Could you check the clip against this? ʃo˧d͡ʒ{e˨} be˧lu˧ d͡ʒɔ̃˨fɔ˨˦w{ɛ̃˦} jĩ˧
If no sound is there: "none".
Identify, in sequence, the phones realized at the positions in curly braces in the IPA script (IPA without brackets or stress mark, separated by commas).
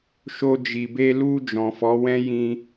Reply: i˨, ɛ̃˦